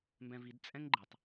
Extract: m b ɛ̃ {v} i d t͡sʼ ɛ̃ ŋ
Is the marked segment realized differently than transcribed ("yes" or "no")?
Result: no